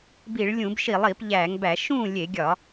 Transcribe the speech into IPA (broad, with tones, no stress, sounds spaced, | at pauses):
b i˧˩˧ ɭ lʲ ũ˧˩˧ b ʃ i˧˩˧ lˠ i˧˩˧ p ʎ æ˧˩˧ ŋ b æ˧˩˧ ʃ ũ˥˩ lʲ e˧˩˧ ɡʲ ɒ˧˩˧